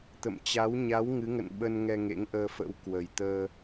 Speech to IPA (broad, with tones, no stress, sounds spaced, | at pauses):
t̪ ə̰˧˨ m t͡ɕ a˨˦ w ɲ a˨˦ w ŋ ɨ˨˦ ŋ ə̰˧˨ n ɓ ə˧ n ŋ ɛ˧ ŋ ḛ˧˥ ŋ ʔ əː˧ f ə̰˧˥ w k w ə˨˩ j t̪ əː˧